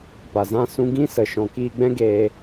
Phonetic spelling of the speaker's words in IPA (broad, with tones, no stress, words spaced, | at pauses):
pa˨zã˦˨ sũ˧ɡĩ˦sə˨ ʃɔ̃˨kiː˧ɡ͡bɛ̃˦ɡeː˧